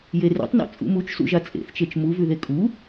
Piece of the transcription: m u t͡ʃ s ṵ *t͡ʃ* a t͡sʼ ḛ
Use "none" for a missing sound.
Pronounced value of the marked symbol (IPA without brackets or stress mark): ʒ